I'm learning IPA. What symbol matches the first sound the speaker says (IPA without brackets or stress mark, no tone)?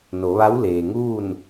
n